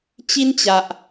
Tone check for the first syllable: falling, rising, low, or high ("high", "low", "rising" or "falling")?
high